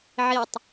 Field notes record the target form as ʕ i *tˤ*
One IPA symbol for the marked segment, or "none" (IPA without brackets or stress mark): tˤ